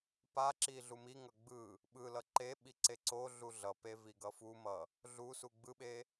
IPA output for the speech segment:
p a ǁ i ɮ u m i ŋ ʌ ɡ͡b ɯ | ɓ ɯ l ʌ ǃ e ɓ i ǀ e ǀ o ɮ u ɮ ʌ p e v i ɡ ʌ f u m ʌ | ɮ u s u ɡ͡b ɯ ɓ e

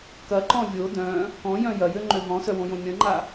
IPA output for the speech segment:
k ɐ ǃ ɔ̃ vʲ o d œ̃ | k ɔ̃ j œ̃ j ɐ j ø ŋ͡ǃ ø ɦ ɔ̃ s œ w õ j õ mʲ ɐ̃ ŋ͡ǃ a

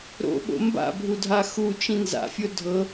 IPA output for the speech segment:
ɾ o̰ ɓ o̰ m b a̰ bʱ u dʱ a x u t͡ʃ ĩ n z a̰ fʲ o dʱ ɤ

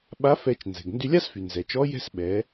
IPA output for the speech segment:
ɓ a˧˥ f ɛ˧ t͡ʃ n z ɛ̤˩ ɡ n d y˧ lʲ a˥ s f y˩ n z ɛ˩ t͡ʃ ɔ˧˥ j ɛ̤˥ s ɓ ɛ˩˧

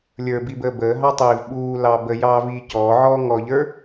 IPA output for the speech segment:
lʲ ə˞ b i b əː b əː ɦ ɑ tˤ iː v ɓ uː l ɑ b ə j ɑː v iː c ɔː ʕ ɔː ŋ ɔ ʎ ə˞

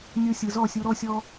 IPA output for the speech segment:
nʲ o˧ sʲ ɯ˨ z ɔ˦˨ sʲ u˧ ɾ ɔ˦ sʲ ɔ˦

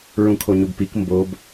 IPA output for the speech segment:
ɹ ũ kʰ o ɲ u b p i k m b o b

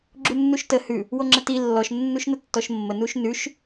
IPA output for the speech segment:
ɡ͡ǁ u nː u ʃ t ə h ʉ | w o ŋ͡ǁ ə t i lː ɔ ʃ nː u ʃ n ə tː ɔ ʃ mː ə n u ʃ n ʉ ʃ

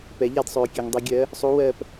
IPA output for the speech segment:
p ɛ˨˩˦ ʎ a˦˨ d sˤ øː˨ kʲ ø˨ ŋ dˤ i˨ ɡʲ ɜ˨˥ | sˤ u˨˥ w ɜ˦˨ p

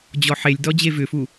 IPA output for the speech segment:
d͡ʑ ɔ ħ e lʲ d ɔ d͡ʑ e v ʏ f u

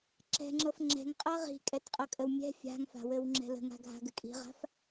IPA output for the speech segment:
ǁ ɛ̤ ŋ͡ǁ ɤ f ŋ͡ǁ ɛ̤ ŋ qʼ ɤ ʁ i̤ kʼ ɛ t qʼ ɤ kʼ ə w mʲ ɛ̤ fʲ a̤ ŋ f a̤ w ɘ w ŋ͡ǁ ɛ̤ l ə̤ ŋ a̤ ɡʱ a̤ ɡ ɘ kʼ i̤ ʁ a̤ f

